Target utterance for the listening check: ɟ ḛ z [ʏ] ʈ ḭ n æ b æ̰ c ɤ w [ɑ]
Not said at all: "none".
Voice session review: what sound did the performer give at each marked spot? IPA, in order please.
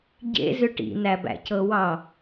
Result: ʏ, ɑ

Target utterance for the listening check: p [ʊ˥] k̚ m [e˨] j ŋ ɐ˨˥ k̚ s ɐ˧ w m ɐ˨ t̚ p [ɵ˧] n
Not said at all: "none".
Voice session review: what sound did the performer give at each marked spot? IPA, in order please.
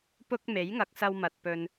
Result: ʊ˥, e˨˥, ɵ˧

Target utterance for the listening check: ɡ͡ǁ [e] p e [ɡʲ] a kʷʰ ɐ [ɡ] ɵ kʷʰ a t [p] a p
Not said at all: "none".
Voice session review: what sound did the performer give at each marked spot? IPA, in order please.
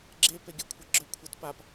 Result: e, ɡʲ, ɡ͡ǁ, p

